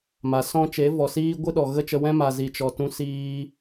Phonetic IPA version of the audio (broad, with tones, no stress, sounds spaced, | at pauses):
m a˨ s ɔ̃˦ t͡ʃ e˨˦ v ɔ˨ s iː˦ ɡʷ ɨ˦ ɗ ɔ˨ ɣ ə˦ t͡ʃ ə˧ w ɛ̃˦ m a˨ z i˨ t͡ʃ ɔ˨ t ũ˧ s iː˧